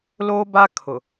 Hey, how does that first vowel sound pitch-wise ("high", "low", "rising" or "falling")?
high